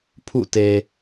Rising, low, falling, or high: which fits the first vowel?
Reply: falling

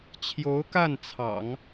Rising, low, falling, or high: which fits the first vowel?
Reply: rising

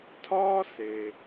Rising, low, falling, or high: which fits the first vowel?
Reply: high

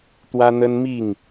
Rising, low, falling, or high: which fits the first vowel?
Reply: high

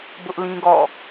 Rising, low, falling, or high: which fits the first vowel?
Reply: high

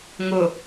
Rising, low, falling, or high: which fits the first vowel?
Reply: low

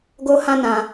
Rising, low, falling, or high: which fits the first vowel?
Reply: high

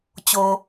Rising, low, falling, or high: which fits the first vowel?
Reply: low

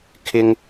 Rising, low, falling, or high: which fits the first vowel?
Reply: high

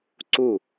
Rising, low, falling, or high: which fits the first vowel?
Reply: falling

